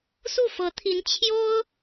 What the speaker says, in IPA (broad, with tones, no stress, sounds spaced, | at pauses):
s u˥˩ f ɤ˧˥ t̪ʰ i˧˥ n t͡ɕʰ j o˥ ʊ̯